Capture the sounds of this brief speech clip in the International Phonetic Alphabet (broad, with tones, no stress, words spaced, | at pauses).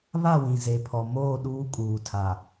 βa˦˨wĩ˨ze˨ pʰɔ˨moː˦˨ ɗuː˦ kʼuː˨tʰa˨